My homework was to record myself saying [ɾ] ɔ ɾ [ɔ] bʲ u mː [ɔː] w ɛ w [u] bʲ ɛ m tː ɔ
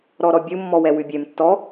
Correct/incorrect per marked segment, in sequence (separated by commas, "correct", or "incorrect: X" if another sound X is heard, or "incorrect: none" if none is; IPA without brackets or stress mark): correct, correct, incorrect: ɔ, incorrect: ʉ